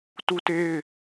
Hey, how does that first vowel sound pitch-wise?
high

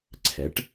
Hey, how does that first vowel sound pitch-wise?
rising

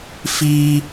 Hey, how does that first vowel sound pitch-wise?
high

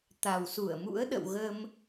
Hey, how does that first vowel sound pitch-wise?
low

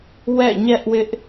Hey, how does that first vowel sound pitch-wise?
falling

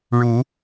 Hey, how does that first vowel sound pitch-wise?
rising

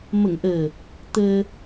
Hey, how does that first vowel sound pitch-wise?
low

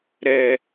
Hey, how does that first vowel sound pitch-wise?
low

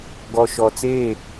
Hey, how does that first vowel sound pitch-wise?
low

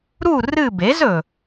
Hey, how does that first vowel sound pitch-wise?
falling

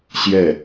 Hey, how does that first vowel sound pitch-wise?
falling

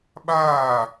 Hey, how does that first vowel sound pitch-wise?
falling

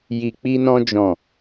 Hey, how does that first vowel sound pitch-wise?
low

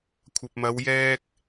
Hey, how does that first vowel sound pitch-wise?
low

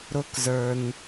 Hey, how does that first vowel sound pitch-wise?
low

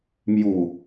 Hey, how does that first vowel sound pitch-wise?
low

